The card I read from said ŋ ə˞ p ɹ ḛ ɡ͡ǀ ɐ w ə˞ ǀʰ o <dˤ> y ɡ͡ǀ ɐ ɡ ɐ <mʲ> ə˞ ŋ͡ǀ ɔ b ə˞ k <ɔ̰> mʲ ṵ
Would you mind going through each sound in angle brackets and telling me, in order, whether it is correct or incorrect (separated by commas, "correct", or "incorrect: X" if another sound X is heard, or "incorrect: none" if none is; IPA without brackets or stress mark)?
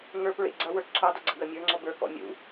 correct, correct, correct